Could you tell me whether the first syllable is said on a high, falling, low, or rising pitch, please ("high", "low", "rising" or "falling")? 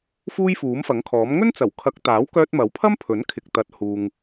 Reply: high